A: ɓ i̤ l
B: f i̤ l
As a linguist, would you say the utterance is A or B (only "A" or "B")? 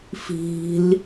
B